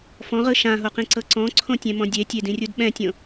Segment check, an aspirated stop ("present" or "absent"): present